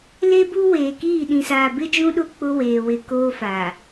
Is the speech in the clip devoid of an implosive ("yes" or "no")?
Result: no